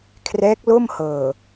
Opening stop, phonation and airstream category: aspirated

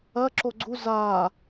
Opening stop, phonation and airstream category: click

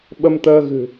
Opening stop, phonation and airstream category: implosive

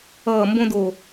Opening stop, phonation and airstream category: plain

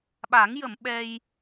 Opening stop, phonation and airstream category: implosive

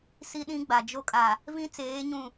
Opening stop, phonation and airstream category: implosive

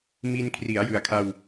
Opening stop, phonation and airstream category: aspirated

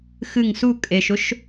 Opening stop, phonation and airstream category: ejective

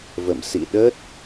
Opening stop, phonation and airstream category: implosive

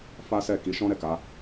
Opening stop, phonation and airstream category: plain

